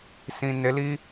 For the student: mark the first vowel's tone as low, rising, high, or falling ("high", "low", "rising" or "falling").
low